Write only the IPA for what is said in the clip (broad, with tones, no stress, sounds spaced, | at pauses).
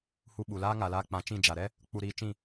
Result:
h u˧ ɓ u˨ l aː˦ ŋ a˨ l aː˧ k͡p ã˨˦ t͡ʃ ĩ˦˨ d͡ʒ a˨ ɾ ɛ˦ | k͡p u˧ ɾ iː˧ t͡ʃ ĩ˦˨